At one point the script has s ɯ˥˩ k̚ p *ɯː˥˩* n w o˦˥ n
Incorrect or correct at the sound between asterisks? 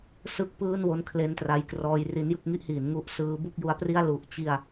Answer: correct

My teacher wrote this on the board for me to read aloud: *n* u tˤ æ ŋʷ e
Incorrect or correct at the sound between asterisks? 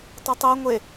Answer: incorrect: tˤ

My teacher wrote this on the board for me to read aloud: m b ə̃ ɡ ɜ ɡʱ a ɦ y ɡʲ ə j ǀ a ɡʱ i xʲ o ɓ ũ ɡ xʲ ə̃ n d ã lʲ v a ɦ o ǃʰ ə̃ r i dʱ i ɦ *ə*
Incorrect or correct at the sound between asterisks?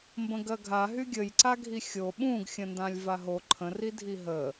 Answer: correct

